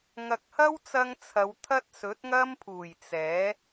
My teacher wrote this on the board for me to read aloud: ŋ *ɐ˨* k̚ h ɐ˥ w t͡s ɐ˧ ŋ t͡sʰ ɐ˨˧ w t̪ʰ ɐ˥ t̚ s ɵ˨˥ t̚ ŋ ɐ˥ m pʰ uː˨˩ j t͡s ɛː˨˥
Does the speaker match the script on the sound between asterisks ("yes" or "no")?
yes